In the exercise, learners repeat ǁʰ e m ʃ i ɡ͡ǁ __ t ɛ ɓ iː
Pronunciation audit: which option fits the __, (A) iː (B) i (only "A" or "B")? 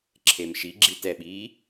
B